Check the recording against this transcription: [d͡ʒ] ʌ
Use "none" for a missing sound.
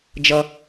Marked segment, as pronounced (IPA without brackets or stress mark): d͡ʒ